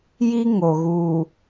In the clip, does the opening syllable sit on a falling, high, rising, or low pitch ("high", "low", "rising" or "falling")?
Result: high